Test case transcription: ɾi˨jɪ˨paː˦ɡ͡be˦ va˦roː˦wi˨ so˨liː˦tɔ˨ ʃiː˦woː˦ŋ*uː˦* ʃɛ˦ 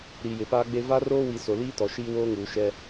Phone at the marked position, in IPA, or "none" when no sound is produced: uː˨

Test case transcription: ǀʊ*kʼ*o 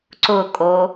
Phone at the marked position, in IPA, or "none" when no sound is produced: kʼ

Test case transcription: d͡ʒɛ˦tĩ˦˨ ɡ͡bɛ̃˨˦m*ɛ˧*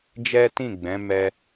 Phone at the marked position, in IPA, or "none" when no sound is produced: ɛ˧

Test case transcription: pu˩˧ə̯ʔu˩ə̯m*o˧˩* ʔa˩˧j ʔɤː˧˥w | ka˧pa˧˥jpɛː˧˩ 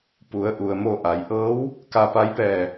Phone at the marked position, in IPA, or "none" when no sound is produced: o˧˩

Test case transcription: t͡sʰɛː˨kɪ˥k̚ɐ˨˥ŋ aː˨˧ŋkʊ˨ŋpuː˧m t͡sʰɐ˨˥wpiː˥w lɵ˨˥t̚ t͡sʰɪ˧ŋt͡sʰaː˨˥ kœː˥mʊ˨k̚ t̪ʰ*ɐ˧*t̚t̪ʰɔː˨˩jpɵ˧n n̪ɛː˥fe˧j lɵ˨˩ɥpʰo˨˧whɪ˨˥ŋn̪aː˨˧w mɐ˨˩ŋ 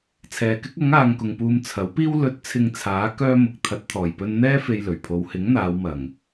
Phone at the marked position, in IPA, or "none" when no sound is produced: ɐ˨˥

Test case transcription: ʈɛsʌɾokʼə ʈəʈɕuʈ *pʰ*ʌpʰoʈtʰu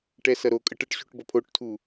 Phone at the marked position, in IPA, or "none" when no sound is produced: b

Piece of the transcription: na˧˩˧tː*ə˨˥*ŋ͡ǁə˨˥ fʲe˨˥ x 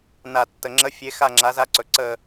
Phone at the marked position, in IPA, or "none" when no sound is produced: ə˩˧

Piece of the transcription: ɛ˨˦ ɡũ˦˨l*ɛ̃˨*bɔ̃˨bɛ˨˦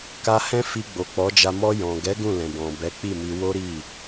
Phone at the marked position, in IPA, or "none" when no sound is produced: ɛ̃˨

